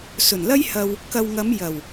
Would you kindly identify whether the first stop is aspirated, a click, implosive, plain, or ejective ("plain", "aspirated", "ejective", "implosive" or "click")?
plain